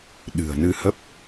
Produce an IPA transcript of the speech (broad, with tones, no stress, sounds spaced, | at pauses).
ɗ ɨ̤˨˩ ə̯ n ɨ˧ h ə˦˥ p̚